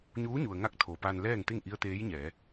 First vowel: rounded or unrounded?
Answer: rounded